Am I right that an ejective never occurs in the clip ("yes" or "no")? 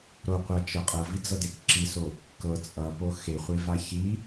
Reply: no